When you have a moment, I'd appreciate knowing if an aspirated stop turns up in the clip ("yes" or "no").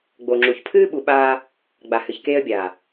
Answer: yes